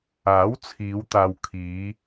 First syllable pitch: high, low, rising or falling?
rising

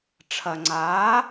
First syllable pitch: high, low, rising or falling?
low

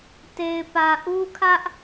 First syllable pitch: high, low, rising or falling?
low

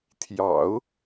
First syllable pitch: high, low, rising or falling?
low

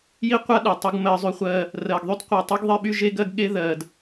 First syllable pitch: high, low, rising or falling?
high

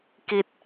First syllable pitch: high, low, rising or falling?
low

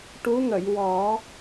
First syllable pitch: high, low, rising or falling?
rising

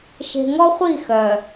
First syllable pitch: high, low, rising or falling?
low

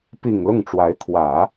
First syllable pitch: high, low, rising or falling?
low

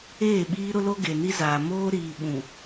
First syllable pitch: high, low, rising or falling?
falling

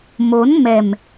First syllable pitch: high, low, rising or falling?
rising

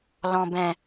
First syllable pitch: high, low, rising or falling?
low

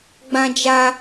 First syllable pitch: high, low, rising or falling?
high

